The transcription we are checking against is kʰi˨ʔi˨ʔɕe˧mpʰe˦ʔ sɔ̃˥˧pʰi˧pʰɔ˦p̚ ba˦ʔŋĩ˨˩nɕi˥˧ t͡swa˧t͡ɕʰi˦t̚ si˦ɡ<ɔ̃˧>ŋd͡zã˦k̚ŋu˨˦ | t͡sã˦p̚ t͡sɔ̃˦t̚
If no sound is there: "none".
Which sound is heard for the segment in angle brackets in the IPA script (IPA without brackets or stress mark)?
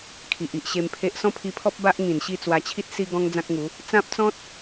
ɔ̃˦